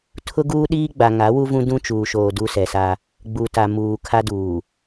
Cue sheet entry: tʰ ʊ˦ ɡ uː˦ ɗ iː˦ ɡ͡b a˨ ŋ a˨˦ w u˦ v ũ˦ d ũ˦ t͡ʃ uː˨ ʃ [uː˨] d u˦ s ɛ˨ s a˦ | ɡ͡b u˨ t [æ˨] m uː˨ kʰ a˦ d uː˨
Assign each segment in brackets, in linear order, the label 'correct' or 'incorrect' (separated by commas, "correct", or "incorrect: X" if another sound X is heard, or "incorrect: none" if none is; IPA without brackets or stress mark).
incorrect: oː˨, incorrect: a˨